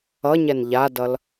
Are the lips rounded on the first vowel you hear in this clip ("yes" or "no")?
no